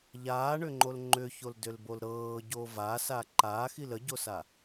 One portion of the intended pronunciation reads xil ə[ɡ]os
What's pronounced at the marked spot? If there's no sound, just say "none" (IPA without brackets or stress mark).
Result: ɟ